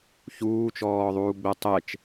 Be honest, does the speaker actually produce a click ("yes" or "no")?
no